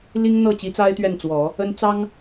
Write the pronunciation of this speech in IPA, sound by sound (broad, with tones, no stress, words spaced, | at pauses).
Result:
li˥ŋn̪ɤ˥˩ t͡ɕi˧˥t͡sa˥ɪ̯ t̪ɥɛ˥˩nt͡swɔ˨˩˦ | ə˥nt͡sɑ˥ŋ